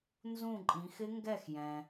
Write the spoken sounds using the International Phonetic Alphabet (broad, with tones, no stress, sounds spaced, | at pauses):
n z ũ˥˩ ǃʼ ĩ˩˧ x ɪ˦˥ ŋ ɡ ɛ˥˩ x j ɛ̃˩